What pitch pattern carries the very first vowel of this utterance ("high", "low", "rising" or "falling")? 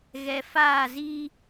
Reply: low